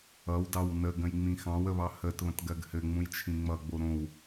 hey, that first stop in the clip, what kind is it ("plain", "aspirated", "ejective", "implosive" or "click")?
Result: plain